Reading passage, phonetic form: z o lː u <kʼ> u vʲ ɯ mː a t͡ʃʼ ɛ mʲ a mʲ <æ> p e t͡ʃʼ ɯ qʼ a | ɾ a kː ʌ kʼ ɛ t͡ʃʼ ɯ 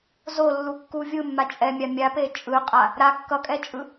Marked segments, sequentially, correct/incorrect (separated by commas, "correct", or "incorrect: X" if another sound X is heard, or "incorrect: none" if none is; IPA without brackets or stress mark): incorrect: kː, incorrect: a